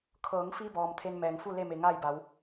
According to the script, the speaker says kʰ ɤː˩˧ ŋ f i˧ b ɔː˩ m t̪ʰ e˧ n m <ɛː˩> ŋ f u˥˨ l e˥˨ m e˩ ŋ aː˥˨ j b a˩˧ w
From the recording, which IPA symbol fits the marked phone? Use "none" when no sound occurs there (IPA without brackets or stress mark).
ɛː˩